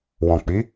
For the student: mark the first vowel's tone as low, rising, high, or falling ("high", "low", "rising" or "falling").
low